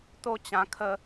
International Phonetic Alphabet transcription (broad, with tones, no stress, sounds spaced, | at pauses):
t̪ o˥˧ t͡ɕ ã˧ kʰ ə˦